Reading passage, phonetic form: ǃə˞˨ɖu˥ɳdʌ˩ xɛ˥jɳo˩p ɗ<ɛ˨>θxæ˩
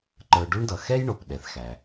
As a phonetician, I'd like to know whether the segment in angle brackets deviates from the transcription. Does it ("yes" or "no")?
yes